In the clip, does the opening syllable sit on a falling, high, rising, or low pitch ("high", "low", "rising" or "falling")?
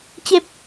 low